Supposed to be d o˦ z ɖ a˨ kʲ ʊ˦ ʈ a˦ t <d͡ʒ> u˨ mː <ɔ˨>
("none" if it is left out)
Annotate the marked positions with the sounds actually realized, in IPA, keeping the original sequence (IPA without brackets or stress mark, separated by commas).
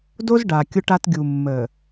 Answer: ɡʲ, ə˨